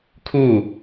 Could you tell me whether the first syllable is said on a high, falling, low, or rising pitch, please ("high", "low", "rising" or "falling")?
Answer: falling